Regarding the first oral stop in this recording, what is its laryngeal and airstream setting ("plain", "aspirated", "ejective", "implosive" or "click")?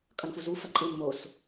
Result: ejective